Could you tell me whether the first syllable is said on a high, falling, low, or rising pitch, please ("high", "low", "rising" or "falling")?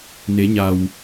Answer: rising